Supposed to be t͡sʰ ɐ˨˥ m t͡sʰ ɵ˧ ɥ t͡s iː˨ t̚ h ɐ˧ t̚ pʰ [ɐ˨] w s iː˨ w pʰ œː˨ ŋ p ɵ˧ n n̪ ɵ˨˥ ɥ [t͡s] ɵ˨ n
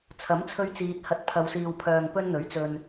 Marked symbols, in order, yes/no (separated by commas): yes, yes